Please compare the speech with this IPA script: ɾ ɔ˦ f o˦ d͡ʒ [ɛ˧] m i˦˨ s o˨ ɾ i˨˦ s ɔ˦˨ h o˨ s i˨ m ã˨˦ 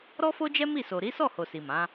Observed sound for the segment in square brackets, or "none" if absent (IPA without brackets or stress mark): ɛ˦